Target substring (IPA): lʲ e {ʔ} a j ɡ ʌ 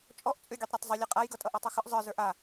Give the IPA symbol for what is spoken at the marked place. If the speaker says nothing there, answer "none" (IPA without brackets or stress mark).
qʼ